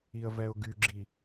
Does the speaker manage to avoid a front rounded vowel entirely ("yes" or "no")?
no